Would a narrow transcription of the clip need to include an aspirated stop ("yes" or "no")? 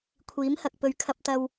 yes